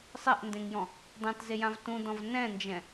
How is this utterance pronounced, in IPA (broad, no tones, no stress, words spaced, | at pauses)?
sˤɛʔndẽŋjɔ̃ | dˤɛ̃tzejãv tũdɔ̃v nɛ̃nd͡ʒɛ̃